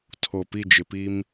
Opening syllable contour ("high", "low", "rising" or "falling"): low